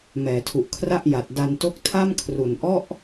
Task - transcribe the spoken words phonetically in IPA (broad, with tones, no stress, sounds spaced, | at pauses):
m ɛː˩˦ tʰ u˨˩ ʔ kʰ r a˥˩ ʔ j a˨˩ t̚ d a˧ n t o˥˩ k̚ tʰ a˥˩ m kʰ r u˨˩ n ʔ ɔ˥˩ ʔ